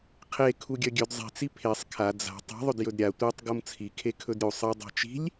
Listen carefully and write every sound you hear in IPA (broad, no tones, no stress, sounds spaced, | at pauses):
qʰ e kʰ u ɡʲ ɐ ɡʲ ɵ d zˤ i̤ t͡s i pʰ e sˤ kʰ a d͡z a̤ tˤ i̤ ðˤ ɵ d j ɵ d ɾʲ a tʷ e tˤ ɡ o m t͡sʰ i kʰ e kʰ ɵ d ɾʲ u sˤ ɨ dˤ a̤ t͡ʃ i̤ lʲ